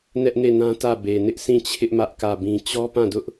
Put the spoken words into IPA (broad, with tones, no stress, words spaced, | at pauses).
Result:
nɛ˦ʔne˦˨nã˦tä˦˨ be˨ nɪ˦ʔsʰĩ˦˨t͡ɕʰɪ˦ʔ mä˦ʔkä˦˨bĩ˦ t͡ɕɔ˦pã˦˨dʊ˦ʔ